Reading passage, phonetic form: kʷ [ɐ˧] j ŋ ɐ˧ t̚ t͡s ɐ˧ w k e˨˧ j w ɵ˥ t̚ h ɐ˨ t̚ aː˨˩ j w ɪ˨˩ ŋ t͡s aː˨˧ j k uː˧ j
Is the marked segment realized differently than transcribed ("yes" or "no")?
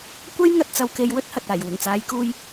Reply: no